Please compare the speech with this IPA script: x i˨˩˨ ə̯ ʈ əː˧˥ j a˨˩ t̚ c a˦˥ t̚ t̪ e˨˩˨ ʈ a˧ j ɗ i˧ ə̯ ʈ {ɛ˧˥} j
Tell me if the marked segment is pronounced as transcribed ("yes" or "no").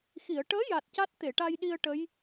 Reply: no